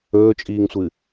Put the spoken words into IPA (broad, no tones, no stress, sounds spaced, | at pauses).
ɵː t͡ʃʼ iː ŋ sʷ ɨ